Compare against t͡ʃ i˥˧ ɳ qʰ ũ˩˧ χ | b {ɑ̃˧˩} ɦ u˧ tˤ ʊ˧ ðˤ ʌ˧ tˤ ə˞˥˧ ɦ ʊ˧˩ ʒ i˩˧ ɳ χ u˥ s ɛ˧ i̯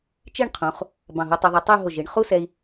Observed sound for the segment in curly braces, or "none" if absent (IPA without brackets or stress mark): ɑ̃˧˩